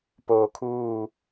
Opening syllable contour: low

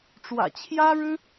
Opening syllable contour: low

